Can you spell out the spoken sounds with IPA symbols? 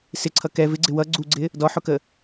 s ɪ ǀʰ ʌ k ɛ v ɪ ɡ͡ǀ ɪ w ʌ ɡ͡ǀ u ɡ͡ǀ ɪ | d ɔ ħ ʊ k ə

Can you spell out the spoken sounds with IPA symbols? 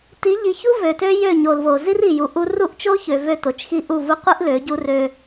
t i˨˦ ʎ i˨ ç u˦ v ø˨ t ø˦ j ø˦˨ ɲ o˨ l v o˨ z i˦ r i˨ j u˨ ʔ u˦ r u˦˨ ʔ t͡ʃ o˦ ç ø˨ v ø˦˨ t o˨ t͡ʃ x i˦ ʔ u˦˨ v u˦ qʷ i˦ ʔ l ø˨˦ ɟ u˦ r ø˦

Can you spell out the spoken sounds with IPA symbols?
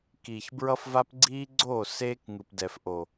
k iː˨ ç b ɹ ʌ˦ f v a˦ p ɡ͡ǀ iː˦ ɡ͡ǀ o˦˨ s eː˦ k ŋ ɯ˨ p d ɛː˨ f ʔ o˨

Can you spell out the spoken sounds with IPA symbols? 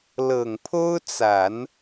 l ɤ˨˩ ŋ pʰ o˥ ʊ̯ t͡s a˨˩˦ n

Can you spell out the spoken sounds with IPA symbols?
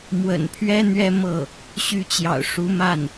m w ə̰˨˩ n pʰ ɥ ɛ˥ n̪ ɥ ɛ˥ m ɤ˥˩ | ɕ y˧˥ t͡ɕ j ɑ̰˨˩ ʊ̯ ʂ u˧˥ m a˥˩ n

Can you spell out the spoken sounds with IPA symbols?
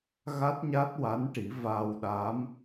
ɣ a˦˥ t̚ ɲ a˦˥ t̚ w a˧˥ n ʈ i˨˩˦ v a˧ w ɗ a˧˥ m

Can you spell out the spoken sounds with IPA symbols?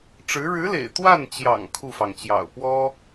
ʈ͡ʂ ɻ̩˧˥ ɻ ɻ̩˧˥ l ḛ˨˩ ɪ̯ t̪ w a˥˩ n t͡ɕ j ɑ̰˨˩ ŋ kʰ u˥˩ f ɑ˩ ŋ t͡ɕ j ɑ̰˨˩ ʊ̯ p w ɔ˥

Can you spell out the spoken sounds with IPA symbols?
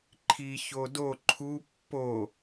ǃʰ i ç o d o ǃʰ u pː o

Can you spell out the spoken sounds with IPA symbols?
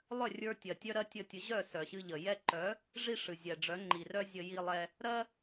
lˠ œ˦˨ rʲ ə˞˧ tʲ ɜ˨ tʲ œ˦ ɾ ɜ˦ tʲ ə˧ tʲ ə˨˦ ʑ œ˦˨ s œ˨ ɕ ɨ˧ ʎ ə˨ j ɛ˧ ǃ œ˨˦ | ʐ i˦ ʂ ɨ˨ zʲ ɛ˨ ɖ͡ʐ œ˨˦ ŋ͡ǃ i˨ r œ˦ zʲ ə˧ j i˧ lˠ ɛ˧ | ɾ ɜ˦

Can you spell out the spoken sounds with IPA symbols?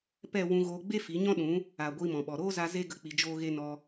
p ɛ˦˨ w ũ˧ ɣ oː˧ ɡ͡b e˦ f i˨˦ ɲ ɔ̃˦ ɗ ũ˨˦ | a˨ ɡʷ iː˧ m ɔ̃˨ ɓ ɔ˨ ɾ oː˦ z a˧ z e˦ ɡ ə˦ k͡p i˧ d͡ʒ oː˦ ɣ e˦ n ɔ˧

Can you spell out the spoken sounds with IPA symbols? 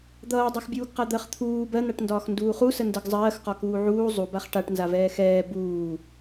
d̪ ʌː dˤ ɜ x bʲ uː ɡ q a d̪ ɜ χ t̪ʰ uː b ɜ n̪ a ʈ n d ɒː x n d uː χ u s ə n d ə ɡ zˤ ɜː x q ɒ k uː ʕ uː zˤ u b a χ ʈ a ʈ n z a v ɛː x ɛː b uː

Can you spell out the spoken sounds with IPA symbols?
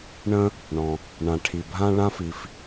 ɳ ə̃˥ | ɳ ɔ̃˩ | ɳ ã˩ ʈʰ i˩ bʱ ã˥ ɭ ã˥ f i˩ f

